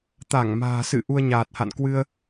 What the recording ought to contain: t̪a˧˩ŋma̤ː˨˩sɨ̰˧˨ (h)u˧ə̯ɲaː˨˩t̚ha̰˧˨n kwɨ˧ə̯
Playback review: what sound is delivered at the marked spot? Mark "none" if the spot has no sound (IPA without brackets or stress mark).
ʔ